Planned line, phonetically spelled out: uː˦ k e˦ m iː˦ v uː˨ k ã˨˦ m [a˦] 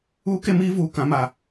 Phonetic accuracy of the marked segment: incorrect: a˨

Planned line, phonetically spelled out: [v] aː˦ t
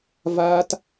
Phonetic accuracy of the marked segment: correct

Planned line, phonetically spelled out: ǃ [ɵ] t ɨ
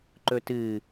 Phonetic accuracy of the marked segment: correct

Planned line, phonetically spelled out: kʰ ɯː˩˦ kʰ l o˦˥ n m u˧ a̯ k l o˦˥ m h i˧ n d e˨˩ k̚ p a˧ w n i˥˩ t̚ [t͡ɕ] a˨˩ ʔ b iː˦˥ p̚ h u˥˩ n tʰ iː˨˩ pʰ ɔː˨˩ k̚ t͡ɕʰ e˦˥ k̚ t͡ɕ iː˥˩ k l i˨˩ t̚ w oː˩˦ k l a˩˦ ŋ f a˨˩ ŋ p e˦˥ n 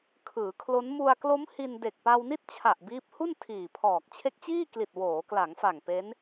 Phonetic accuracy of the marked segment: incorrect: t͡ɕʰ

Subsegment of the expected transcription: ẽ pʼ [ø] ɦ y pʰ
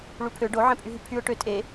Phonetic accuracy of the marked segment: incorrect: y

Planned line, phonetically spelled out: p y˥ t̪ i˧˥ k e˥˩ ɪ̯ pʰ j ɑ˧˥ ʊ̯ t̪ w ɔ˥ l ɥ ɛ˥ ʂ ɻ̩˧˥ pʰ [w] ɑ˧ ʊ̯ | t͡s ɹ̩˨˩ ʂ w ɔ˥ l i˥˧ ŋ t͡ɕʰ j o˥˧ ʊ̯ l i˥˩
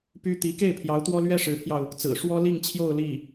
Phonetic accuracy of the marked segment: incorrect: j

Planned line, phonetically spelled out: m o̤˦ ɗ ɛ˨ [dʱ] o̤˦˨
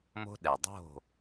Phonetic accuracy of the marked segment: incorrect: dˤ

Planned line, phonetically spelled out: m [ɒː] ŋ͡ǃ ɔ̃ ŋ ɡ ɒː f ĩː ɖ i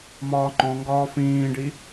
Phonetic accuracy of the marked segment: correct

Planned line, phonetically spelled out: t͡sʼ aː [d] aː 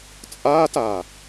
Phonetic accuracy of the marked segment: incorrect: t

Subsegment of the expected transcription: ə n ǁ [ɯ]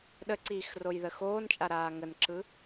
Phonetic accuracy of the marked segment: correct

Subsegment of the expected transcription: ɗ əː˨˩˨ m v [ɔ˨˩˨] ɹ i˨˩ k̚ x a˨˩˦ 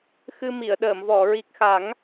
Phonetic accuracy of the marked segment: correct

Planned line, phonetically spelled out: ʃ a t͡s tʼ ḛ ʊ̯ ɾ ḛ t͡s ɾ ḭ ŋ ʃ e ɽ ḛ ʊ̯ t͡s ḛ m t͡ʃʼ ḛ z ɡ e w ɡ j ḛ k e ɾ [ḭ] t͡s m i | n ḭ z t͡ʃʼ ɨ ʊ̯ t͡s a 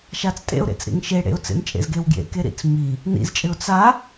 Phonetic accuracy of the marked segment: correct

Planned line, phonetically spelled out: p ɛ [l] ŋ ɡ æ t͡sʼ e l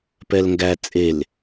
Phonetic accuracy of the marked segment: correct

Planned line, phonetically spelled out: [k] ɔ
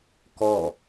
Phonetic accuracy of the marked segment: correct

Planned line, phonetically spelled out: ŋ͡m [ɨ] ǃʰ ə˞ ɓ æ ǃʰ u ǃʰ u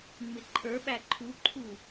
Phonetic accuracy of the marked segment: incorrect: ɪ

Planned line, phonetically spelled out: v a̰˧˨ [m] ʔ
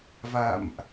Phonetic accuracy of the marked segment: correct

